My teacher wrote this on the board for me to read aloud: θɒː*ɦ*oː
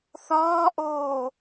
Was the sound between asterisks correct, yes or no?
no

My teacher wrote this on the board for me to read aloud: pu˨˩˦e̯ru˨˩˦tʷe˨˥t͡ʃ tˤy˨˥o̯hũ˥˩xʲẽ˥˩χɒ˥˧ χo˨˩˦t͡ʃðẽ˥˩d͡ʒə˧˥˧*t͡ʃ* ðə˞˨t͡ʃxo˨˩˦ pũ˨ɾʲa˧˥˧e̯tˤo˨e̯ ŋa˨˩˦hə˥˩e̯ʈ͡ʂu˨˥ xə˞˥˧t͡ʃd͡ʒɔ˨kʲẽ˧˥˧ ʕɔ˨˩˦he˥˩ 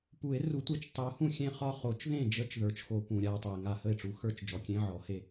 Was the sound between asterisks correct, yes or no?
yes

